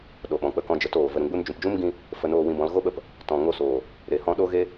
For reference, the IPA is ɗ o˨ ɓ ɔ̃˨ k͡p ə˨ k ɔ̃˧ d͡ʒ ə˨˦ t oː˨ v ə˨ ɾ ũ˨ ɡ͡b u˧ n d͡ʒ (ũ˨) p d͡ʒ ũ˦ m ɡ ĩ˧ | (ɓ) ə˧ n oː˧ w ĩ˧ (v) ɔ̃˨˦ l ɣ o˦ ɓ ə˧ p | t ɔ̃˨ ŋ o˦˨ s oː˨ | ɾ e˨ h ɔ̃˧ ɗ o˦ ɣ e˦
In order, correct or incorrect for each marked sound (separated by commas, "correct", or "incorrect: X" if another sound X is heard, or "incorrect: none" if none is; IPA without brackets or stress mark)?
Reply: correct, incorrect: f, incorrect: b